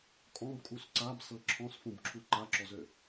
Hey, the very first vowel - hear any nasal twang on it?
yes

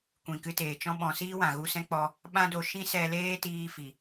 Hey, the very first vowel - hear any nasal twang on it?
yes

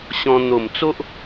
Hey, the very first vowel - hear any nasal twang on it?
yes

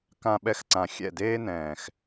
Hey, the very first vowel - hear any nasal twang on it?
yes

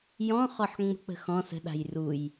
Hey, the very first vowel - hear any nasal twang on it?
yes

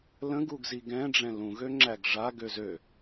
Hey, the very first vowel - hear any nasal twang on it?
yes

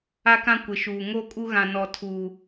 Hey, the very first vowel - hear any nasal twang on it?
no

